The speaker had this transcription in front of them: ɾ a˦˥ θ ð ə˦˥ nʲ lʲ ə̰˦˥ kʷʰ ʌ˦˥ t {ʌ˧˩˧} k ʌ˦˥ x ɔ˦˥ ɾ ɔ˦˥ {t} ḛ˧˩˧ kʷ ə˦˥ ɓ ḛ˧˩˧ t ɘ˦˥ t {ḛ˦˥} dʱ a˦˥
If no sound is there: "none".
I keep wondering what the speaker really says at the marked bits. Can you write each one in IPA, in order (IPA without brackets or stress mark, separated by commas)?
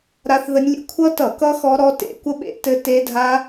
ʌ˧˩˧, t, e˦˥